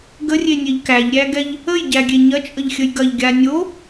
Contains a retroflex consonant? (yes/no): no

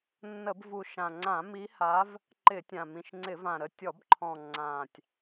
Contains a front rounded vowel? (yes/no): no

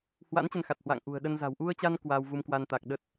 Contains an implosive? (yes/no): yes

